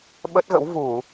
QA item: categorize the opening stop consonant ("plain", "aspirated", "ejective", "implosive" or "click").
implosive